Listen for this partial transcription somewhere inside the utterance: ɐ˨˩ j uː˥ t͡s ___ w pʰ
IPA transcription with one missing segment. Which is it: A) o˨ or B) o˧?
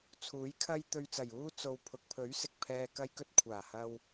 B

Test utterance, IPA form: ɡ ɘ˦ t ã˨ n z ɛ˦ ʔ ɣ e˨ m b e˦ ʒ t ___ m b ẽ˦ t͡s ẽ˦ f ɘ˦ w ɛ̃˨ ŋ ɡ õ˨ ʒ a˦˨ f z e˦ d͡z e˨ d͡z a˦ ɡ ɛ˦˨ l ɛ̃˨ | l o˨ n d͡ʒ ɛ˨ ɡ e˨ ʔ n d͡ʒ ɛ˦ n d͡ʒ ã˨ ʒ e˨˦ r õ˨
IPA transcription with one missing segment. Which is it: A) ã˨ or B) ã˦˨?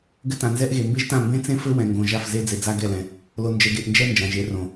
B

